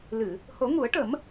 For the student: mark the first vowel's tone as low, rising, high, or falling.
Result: low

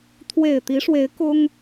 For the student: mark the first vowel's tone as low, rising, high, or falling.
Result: low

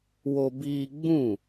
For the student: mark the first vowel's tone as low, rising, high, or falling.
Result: high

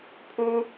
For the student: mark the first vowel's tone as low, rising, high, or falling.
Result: high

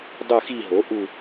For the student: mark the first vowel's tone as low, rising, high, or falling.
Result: falling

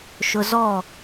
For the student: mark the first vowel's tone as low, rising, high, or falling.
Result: high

